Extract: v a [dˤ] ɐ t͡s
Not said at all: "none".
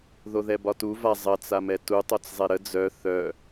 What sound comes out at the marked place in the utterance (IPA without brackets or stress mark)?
zˤ